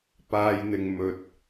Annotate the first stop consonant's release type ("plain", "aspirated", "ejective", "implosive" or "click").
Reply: plain